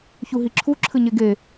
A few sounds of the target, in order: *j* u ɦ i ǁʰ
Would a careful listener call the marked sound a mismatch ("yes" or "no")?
yes